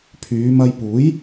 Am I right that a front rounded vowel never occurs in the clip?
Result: no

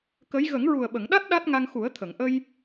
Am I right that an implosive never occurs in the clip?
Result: no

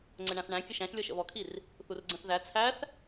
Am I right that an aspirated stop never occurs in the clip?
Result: no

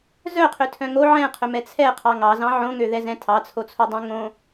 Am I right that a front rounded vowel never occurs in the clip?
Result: no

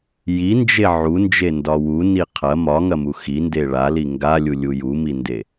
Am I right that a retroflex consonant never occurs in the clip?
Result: no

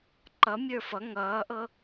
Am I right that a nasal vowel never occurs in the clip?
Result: yes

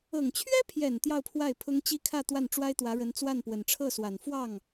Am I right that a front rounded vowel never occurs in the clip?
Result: yes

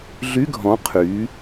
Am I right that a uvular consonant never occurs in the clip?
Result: no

